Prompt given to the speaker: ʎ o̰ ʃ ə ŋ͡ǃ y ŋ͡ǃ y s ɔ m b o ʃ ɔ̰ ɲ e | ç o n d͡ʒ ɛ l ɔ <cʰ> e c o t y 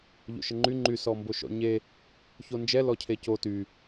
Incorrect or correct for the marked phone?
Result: correct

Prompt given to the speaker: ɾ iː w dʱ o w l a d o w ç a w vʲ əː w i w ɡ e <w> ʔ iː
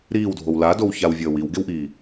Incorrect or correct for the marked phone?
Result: correct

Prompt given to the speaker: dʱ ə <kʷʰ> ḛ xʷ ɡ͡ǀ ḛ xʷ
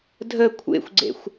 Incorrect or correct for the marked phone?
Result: correct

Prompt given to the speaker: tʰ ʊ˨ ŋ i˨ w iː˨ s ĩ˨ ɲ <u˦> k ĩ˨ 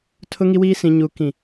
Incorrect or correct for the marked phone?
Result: incorrect: u˨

